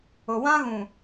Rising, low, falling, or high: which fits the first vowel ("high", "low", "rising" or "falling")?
low